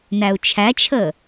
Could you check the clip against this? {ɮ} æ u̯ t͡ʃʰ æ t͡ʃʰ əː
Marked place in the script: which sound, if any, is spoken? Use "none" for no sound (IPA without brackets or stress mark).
n